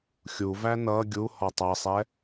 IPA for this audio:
xʲuvæ nʌ ɡʲu hɔtˤʌsˤɛ

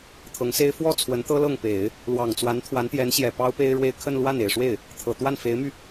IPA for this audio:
t̪ʰɤ˧˥ŋse˥ɪ̯ fwɔ˥˩ t͡sʰwə˧˥nt̪ɤ˥lɤ˥˩ŋpe˨˩˦ɪ̯ | lwɑ˨˩ŋt͡swa˧˥n t̪ʰwa˧˥nt̪jɛ˧˥n ɕjɛ˨˩ pɑ˥ʊ̯pe˥ɪ̯ɻwe˥˧ɪ̯ kʰə˥˧nlwa˥˩n e˨˩ɪ̯ʂwe˥˩ɪ̯ | t̪ʰɤ˨˩t̪wa˥˩n fe˧˥ɪ̯my˧

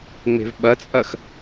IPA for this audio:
ŋ͡me̤vɓɐt͡sʼɐx

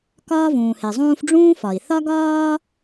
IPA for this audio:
kɒː˥vũː˩he˩zˤũː˥f ɖ͡ʐũː˥fɒ˩i̯ θɒ˥ɡɒː˥

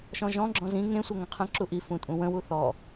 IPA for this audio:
ʃɔ̃ʒɔ̃ɡ͡ǁɔ̃ zĩ ŋẽsʷʌ ŋə̃qʰə̃ǁu ʔi fũtʼũwə̃wu θɔ

